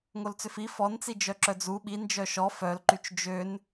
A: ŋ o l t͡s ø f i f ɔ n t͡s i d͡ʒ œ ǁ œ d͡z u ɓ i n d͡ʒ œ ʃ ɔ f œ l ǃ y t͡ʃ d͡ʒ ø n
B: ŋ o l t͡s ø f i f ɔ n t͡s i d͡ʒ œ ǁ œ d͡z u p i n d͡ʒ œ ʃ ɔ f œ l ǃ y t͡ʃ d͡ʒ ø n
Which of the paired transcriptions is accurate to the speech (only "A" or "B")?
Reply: A